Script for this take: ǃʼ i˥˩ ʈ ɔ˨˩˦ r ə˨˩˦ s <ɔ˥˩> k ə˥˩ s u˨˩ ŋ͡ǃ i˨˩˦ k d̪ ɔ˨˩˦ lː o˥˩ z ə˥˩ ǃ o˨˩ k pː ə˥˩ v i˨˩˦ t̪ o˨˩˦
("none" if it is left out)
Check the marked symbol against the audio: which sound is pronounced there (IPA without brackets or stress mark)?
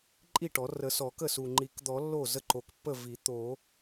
ɔ˨˩˦